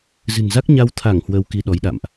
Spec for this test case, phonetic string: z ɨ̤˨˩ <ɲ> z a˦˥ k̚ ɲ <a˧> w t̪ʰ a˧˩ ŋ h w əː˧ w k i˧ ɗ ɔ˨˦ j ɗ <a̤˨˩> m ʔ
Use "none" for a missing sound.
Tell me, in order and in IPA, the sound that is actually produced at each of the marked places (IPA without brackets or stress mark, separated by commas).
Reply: n, a˧, a̰˧˨